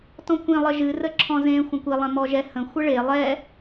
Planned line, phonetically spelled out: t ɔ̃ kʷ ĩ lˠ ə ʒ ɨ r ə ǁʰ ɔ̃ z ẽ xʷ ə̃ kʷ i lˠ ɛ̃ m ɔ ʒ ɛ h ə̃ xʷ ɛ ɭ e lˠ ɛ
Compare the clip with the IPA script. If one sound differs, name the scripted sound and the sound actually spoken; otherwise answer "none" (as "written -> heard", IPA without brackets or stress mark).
none